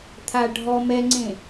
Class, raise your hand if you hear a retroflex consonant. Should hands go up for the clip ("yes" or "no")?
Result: yes